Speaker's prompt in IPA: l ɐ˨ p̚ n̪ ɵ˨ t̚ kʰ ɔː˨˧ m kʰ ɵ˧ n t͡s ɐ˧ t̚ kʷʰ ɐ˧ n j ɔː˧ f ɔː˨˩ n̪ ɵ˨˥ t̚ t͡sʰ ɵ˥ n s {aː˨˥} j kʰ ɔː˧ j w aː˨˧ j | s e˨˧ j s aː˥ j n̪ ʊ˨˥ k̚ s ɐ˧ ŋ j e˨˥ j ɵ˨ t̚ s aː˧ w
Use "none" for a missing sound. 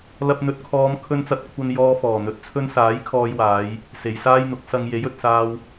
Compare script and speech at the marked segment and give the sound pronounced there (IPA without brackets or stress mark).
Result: aː˨˥